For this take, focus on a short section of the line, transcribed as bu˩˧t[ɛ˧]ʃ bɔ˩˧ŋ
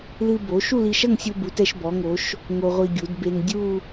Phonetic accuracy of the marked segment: correct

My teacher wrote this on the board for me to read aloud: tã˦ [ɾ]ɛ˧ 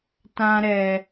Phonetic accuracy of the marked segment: correct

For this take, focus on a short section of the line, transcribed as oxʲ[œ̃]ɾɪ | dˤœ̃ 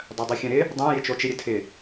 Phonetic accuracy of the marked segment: correct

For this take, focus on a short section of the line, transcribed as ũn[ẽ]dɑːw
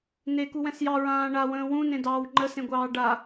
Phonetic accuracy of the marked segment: correct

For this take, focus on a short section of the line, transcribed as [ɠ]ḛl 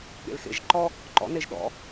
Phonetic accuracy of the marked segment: correct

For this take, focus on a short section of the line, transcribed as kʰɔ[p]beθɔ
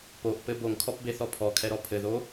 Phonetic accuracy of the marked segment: correct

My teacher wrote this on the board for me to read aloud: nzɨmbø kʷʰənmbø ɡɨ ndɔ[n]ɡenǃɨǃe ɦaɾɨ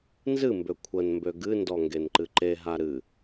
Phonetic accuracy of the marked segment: incorrect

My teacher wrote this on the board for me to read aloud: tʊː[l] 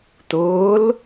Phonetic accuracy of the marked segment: correct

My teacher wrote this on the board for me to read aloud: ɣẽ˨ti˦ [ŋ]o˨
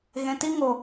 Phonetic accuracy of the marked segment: correct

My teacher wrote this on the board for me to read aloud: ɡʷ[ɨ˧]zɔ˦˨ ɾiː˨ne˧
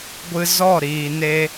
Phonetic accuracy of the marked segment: correct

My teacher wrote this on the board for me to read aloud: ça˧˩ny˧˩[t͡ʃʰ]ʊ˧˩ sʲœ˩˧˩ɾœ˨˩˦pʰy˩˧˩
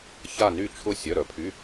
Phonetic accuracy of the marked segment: correct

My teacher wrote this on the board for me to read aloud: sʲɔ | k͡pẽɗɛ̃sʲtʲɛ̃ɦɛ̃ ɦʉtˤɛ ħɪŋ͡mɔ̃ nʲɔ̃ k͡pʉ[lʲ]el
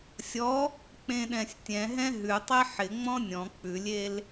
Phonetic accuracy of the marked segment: correct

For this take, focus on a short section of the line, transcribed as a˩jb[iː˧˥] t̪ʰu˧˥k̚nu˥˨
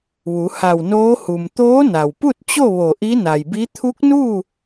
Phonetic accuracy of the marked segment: incorrect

